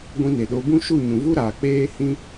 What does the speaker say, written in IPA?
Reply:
ɡʷĩ˦ne˨ɗo˦ bũ˦ʃu˦˨ɲũ˨vu˦ ɾaː˨k͡peː˦hĩ˦

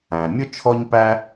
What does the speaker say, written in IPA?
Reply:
æ̃˩mʲʊ˥ t͡ʃʰɔ˥ɲpæ˥

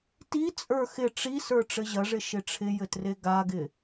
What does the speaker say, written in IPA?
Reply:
ti t͡sʼə˞xɪ ʈ͡ʂisə˞ ʈ͡ʂɘʑɐʐɪ ʃɪʈ͡ʂʰɪjɘtre ɡaɡɪ

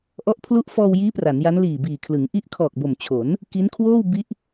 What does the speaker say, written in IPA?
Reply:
ʔɔ˦˥ʔpʰlu˦˥ʔ fɔː˧wjiː˦˥ pra˩˦nja˦˥n liː˨˩biː˨˩kʰlɯ˩˦ŋ ʔi˦˥ʔkʰɔː˨˩k̚bo˨˩m t͡ɕʰo˩˦n | ki˦˥nkʰwoː˥˩wbi˦˥ʔ

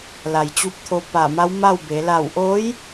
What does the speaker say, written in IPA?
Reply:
la˩jt͡ɕu˧p̚t̪ʰo˧ pa˧˩ma˧˥wma˥˨wbe˩˧ la˧˩wʔoː˧˥j

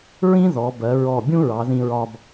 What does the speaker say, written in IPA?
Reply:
ɹĩ˥ðɔ˩˧bɜ˩˧ ɹɔ˧˩bʲũ˥ ɹɑ˩˧ðĩ˧ɹɒ˧b

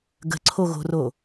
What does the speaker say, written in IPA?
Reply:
ɡə̤ǀʰoɣo̤ro

